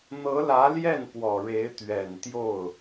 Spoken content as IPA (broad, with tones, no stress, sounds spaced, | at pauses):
n̪ ɤ˧˥ l ä˧˥ l j ɛ˥˩ n p w ɔ˨˩ ɻ e˧˥ ɪ̯ t̪ ɥ ɛ˨˩ n t̪ j o˥˩ ʊ̯